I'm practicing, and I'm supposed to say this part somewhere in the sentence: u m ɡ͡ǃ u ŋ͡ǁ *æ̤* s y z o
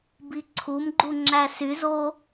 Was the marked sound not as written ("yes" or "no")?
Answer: yes